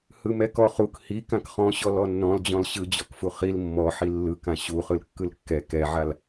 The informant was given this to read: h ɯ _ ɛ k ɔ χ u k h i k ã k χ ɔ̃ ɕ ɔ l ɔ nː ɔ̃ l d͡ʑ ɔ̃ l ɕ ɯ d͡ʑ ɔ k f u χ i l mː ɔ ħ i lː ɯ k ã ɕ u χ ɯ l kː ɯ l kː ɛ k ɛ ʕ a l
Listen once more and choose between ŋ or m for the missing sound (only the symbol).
m